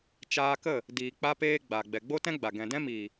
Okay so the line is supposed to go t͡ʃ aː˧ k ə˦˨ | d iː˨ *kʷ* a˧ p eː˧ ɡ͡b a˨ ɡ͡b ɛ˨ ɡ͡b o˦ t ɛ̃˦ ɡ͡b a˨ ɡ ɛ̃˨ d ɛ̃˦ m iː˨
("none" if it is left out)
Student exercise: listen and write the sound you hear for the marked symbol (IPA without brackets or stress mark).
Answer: k͡p